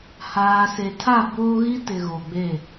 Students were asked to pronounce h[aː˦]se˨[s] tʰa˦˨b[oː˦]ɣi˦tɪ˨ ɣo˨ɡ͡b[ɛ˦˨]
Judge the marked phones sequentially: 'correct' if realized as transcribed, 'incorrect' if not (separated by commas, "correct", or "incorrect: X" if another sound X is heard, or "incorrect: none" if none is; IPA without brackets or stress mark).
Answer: incorrect: aː˨, incorrect: none, correct, incorrect: e˦˨